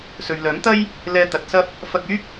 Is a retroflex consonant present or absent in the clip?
absent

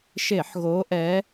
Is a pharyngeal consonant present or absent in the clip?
present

